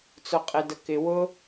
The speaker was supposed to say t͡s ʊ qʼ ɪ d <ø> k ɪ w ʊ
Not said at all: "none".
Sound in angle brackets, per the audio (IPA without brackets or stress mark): ə